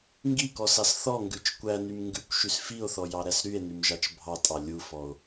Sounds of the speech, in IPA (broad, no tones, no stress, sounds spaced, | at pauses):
ŋ ɡ i k ɔ s ɑ s θ ɔ ŋ ɡ ʉ t͡ʃ kʷ æ n y m ŋ ɡ ʉ kʷ ʃ y s f i o̯ θ ɔ j ɑ ɾ æ s ɾ y e̯ n y m ʒ ɑ t͡ʃ bʱ ɑ tʼ ɑ lʲ u f ɔ o̯